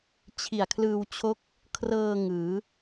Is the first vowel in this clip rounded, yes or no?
no